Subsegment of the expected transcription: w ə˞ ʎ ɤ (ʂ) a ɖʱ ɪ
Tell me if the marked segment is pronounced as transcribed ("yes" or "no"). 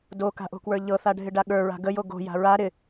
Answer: no